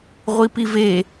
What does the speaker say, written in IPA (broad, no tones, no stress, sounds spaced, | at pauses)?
ʁʷ i p i v e